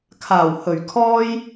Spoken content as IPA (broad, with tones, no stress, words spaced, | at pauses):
kʰaː˨˩whɵ˨˩ɥkʰɔː˧j